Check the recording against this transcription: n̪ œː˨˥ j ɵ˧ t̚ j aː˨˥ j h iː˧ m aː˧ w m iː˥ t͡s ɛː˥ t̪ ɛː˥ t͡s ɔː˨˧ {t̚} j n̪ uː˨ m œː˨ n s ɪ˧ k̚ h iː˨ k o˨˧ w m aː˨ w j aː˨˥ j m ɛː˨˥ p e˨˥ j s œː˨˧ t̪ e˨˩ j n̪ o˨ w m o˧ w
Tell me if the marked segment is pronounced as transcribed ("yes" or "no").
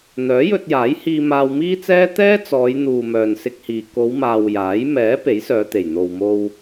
no